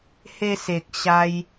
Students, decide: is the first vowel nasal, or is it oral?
oral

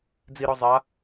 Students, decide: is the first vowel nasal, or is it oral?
oral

